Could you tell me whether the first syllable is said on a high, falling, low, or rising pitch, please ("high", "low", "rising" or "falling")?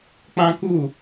high